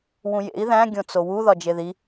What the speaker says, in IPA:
wũjḛi̯ ðæ̃ ɡʲõt͡sowu ðɒd͡ʒeði

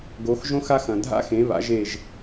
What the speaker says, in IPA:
ɡo˨˦xʒõ˦˥xa˦˥x ɐ̃˨dʱa̰˦˥xẽ˨˦βa̰˨˦ʒ e˦˨ʒ

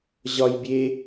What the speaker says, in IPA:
ʑɒj bʲe

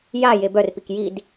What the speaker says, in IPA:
ja jebœrpik jid

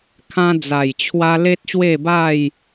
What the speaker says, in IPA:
kʰã˧d͡za˨˩jt͡ɕʰwa˧ le˦t̚ɕwe˥˧ba˥˧j

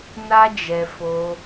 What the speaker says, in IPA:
na˦ d͡ʒɛ˧ fo˧

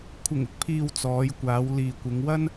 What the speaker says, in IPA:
kʷʰɪ˨˩ŋɪ˨˥k̚pʰiː˨w t͡sɔː˨˧j kʷaː˨˧wliː˨kʷɪ˨˧ŋwɐ˥n

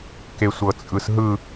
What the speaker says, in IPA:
kesʷɤt͡sʼɯsɦɯ

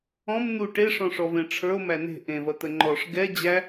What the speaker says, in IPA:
ɔ̃m n̪u ʈeʂɔ̃ ʂɔvẽʈ͡ʂʰə˞o̯ mæne̤ ʔẽvɐt̪ə ŋ͡ǃɔʂ ɡɛ d͡ʑæ

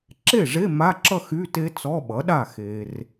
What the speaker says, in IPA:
ǁe˥˩ʐe˧˥˧ ma˧˥˧ǁʌ˥˧ xy˧˥˧te˦˥ t͡sɔ˧˥˧ɓʌ˩˥ɗa˥˩ xe˨r

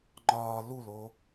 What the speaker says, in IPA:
ŋ͡ǃɒː luloː

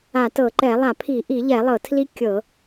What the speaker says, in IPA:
a˧˩˧tɤ˧˩˧ǃɛ˧˩˧ lˠa˧˩˧pʰi˧˩˧ ʔi˧˩˧ʎɛ˧˩˧ lˠɤ˧˩˧tʰli˦˥ kʲɤ˧˩˧

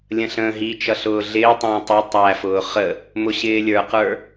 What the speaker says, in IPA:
lʲə̃ɬə̃ːɦit͡ʃʌ ɬʊːɮɪːtˤə̃ː tˤɪ tˤæfʊː χə | mʊɕɪːlʲə˞qə˞

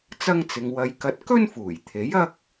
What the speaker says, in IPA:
t͡sɐ˥ŋt͡sɪ˧ŋ wɐ˧jkɐ˧t̚ kɵ˥nfuː˨˩j t̪ʰe˨˥jɐ˥k̚

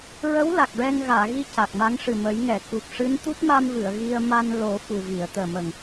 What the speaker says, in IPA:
ɹə˧˥w la˨˩k̚ɹɛ˧ŋ ɣaː˨˩˨ɣi˧ ca˨˩k̚ma˧˥ŋʂɨ˨˩mə˨˩˦j ŋɛ˨˩˨ku˨˩k̚ ʂɨ˧˥n t̪u˦˥t̚ma˧mvɨ˨˩˨ə̯ ɣi˧ə̯ ma˧n lo˨˩˦ fu˨˩vi˨˩˨ə̯t̪əː˨˩mə˨˩ŋ

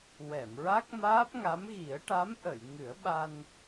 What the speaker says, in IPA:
wɛ˨˩˨mɹa˦˥k̚ maː˦˥p̚ŋa˧˥mɣi˨˩˦ə̯ ʈa˧˥mʔə˨˩˨j ŋɨ˨˩˦ə̯ɓa˧n

